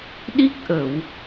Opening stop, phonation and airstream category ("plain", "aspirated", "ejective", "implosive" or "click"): implosive